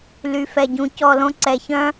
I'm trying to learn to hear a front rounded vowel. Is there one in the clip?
yes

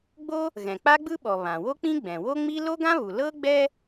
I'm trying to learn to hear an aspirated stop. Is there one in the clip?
no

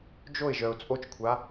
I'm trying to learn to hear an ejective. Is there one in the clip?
yes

